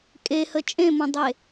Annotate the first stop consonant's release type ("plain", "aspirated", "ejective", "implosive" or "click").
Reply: ejective